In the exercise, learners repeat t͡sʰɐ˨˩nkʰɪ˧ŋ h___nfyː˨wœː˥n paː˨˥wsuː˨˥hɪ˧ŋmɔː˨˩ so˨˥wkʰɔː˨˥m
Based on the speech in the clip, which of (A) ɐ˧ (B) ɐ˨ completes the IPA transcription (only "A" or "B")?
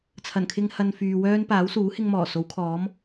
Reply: A